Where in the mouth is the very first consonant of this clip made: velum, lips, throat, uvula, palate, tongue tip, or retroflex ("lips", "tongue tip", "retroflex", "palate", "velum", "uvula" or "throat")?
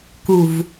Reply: velum